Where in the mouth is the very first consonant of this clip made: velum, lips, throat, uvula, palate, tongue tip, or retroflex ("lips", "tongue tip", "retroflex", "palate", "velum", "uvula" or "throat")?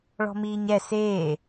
retroflex